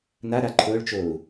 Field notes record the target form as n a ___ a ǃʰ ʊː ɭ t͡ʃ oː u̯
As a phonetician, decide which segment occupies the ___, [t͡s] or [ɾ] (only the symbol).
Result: ɾ